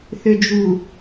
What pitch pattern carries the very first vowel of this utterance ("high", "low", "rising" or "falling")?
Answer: low